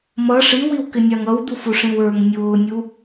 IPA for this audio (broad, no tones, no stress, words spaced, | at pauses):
mʌ ʂiwiwkɪnʲɑŋ ʌwd̪ufuʂĩw ə˞ŋ nʲʊːnʲu